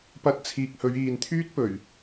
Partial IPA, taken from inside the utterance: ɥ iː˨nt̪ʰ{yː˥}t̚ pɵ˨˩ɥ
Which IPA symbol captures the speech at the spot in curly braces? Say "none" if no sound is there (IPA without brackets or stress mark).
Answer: yː˥